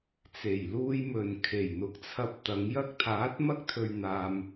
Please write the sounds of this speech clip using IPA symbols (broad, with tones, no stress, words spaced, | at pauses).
t͡se˨˩jluː˧j mɵ˨˩n kʰe˨˩jn̪ʊ˨˥k̚t͡sʰɐ˧p̚ t̪ɐ˨˧ŋjɐ˥k̚ t̪ʰaː˨˥t̚mɐ˥k̚t̪ʰɵ˨ɥ n̪aː˨m